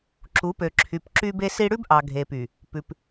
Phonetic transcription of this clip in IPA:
ǁu˨˦pø˨ǁʰy˨p ǁy˦be˦si˦ ɽʉ˦bʔɑ˨ɡʱe˨py˨ | pʉ˨p

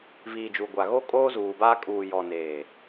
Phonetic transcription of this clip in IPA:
viː˨d͡ʒu˨ɡʷa˨ ɣo˦kʼoː˦zuː˨baː˦ kʼuː˨jɔ˨neː˨

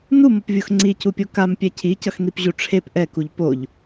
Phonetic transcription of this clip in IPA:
numʌpvʲox ŋ͡ǀicupʲo kampʲɛ cʰicʌxnipʑu ʈ͡ʂʰep ʔɛkuʎ poʎ

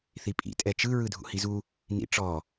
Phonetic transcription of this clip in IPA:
θipʼḭ tʼɛt͡ʃɯ ɹɯdʱṵhizu | nḭʈ͡ʂɔ

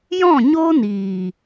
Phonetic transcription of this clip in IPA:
jɔ̃˦˨ɲo˦niː˨

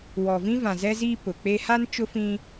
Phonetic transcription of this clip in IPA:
wɔ˨vĩ˦ vã˨zɛ˦ziː˦ pʊ˨k͡pe˦ ha˦n t͡ʃʊ˦fĩ˦

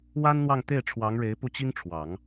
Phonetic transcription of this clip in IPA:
wa˥nn̪wɑ˥˧ŋt̪e˥˩ɪ̯ ʈ͡ʂʰwɑ˧˥ŋɻe˧˥ɪ̯ pu˥˩t͡ɕi˥ŋʈ͡ʂʰwɑ˨˩˦ŋ

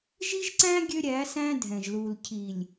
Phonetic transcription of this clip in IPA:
ʒi˦ʒǀæ̃˦ ɡʲø˦ɾʲæ˨˦sæ̃˦ dʱɛ̃˨ʒlu˨l cʰi˨lʲ

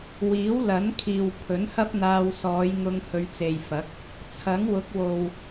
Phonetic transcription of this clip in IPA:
wiː˨˥wlɐ˨˥n kʰiː˨w pʰɵ˨˥nhɐ˥p̚ n̪aː˧w sɔː˨˧j ŋʊ˧ŋhɵ˨˧ɥt͡se˨jfɐ˨˥k̚ | t͡sʰɐ˨˥ŋwʊ˨˥k̚ wo˨w

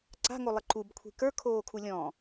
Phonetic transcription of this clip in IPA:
ǀa̤ŋolˠɪ ǃubkʷʰi̤ kə˞kʰoːkʰu lʲɔ̃

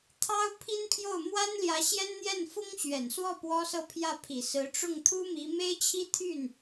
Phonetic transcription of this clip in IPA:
t̪ʰɑ˥ʊ̯ pʰi˥npʰjo˥˩ʊ̯ mwa˥nljä˧˥ ɕjɛ˥nn̪jɛ˥˩n fʊ˥ŋɕɥɛ˨˩nswɔ˥˩ pwɔ˥sɤ˥˧pʰjä˥˩pʰi˨˩ sɹ̩˧˥ ʈ͡ʂʊ˥˩ŋt̪ʰu˥mi˧˥ me˥ɪ̯t͡ɕʰi˥t̪ʰy˥˩n

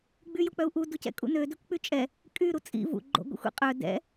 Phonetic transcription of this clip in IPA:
ɡ͡byjok͡pœu̯ʔu ducɛ̰kʼṵnø døkʷk͡pyt͡ʃʼɛ | kʼy ɾut͡sʼḭ vṵ ɡ͡ǃo̰ɡʷḭxʷḭqʼœ dɛ̰

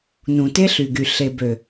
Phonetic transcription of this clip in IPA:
nũ˨te˦ɬy˨ɡy˨ ɬe˨bø˨

